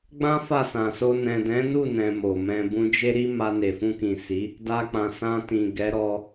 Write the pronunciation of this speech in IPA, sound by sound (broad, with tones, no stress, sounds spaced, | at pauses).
ɡ͡b ã˦ f a˦˨ s ã˨ s o˧ n ɛ̃˨ d ɛ̃˨˦ n u˦˨ n ɛ̃˧ m o˨ m ɛ̃˧ b ũ˧ d͡ʒ e˦ ɾ i˦ m a˧ n e˨ f ũ˧ k ĩ˨ s i˨˦ | d a˧ k͡p ã˨ s ã˧ t ĩ˨ ɡ ɛ˨˦ ɾ ɔ˧